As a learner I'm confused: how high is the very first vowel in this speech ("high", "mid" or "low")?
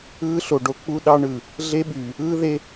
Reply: high